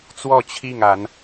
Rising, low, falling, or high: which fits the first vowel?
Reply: falling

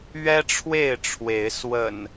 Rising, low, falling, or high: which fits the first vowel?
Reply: high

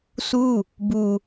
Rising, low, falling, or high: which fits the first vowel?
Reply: falling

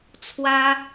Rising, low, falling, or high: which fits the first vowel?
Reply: high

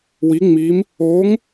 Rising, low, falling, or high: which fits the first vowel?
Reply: rising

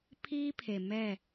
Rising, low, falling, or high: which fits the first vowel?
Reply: high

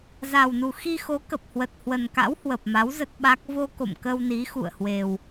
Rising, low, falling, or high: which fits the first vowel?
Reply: low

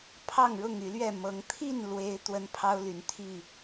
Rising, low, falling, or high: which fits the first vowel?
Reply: falling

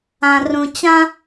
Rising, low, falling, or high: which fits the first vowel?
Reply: low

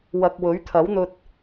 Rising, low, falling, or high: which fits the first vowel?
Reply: low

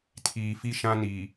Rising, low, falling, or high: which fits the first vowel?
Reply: low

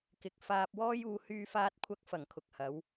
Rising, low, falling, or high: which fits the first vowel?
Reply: low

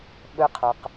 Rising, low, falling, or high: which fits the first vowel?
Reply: low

